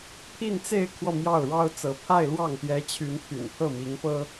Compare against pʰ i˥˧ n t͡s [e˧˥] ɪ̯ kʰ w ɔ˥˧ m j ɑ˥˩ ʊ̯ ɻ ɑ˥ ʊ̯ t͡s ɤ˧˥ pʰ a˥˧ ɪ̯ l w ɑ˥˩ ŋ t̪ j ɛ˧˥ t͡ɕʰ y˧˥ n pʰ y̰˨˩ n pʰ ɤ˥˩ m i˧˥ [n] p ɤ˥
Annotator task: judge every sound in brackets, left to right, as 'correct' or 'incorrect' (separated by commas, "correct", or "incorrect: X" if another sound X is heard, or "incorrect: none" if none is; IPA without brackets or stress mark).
incorrect: e˥˧, incorrect: ŋ